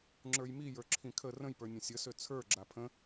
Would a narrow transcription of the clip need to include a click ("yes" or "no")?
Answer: yes